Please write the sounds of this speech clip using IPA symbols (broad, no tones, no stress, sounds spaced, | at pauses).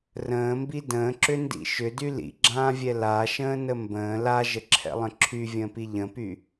r ə̃ː m b i d ə̃ː ǁ ʏ n d ḭ ʃ ʏ d y l ḭ ɡ͡ǁ ãː vʲ ɛ l a ʃ ə̃ː n ə m b ə̃ː l a ʒ ə ǁʰ ɛ̰ lˠ ə̃ ǁʰ y vʲ ə̃ː p i ʎ ə̃ p y